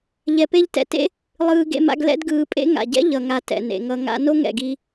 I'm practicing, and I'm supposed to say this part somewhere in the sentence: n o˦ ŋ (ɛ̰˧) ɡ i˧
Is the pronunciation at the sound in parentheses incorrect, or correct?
incorrect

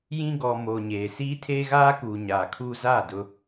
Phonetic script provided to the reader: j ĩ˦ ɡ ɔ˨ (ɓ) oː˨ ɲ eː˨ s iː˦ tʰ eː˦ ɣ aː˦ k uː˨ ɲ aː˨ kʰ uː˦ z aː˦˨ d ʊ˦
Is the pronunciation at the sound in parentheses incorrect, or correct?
incorrect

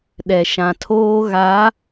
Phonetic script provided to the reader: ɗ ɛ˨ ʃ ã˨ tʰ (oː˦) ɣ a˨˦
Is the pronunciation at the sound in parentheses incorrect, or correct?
correct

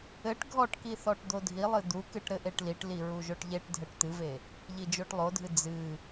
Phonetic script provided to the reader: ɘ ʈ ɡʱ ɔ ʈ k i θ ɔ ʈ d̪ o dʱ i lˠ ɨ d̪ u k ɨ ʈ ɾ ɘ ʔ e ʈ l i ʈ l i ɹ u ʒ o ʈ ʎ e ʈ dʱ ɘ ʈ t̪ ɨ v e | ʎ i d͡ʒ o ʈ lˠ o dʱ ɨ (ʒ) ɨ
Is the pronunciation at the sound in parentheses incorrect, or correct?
incorrect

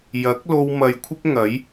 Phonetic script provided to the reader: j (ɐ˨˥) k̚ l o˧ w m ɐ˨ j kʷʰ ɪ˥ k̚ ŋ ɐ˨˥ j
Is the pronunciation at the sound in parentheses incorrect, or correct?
correct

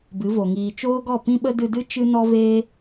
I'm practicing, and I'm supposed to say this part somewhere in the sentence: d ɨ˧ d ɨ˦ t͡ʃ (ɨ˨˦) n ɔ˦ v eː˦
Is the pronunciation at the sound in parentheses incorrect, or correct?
incorrect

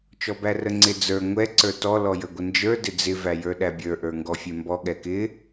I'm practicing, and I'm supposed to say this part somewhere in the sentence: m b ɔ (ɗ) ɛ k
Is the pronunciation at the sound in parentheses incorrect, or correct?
incorrect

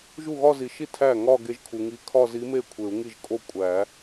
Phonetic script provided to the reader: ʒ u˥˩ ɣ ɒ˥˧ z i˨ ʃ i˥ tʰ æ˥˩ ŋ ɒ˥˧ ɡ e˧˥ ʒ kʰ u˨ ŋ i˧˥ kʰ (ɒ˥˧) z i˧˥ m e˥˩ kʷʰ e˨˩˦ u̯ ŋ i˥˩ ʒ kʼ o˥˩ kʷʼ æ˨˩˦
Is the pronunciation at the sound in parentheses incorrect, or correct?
correct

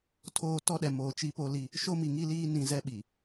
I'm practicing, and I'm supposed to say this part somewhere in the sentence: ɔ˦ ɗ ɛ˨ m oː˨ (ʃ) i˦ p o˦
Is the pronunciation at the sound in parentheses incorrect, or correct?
incorrect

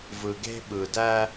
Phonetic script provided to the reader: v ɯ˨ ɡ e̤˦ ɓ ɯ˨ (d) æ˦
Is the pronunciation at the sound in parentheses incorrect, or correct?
correct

